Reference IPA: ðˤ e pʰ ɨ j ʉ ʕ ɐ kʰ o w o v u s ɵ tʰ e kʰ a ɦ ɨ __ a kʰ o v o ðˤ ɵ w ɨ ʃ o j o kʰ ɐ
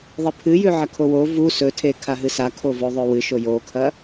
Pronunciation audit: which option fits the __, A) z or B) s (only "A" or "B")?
B